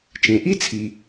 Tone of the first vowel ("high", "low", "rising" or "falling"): low